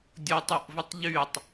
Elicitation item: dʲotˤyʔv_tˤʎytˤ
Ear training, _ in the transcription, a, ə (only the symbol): ə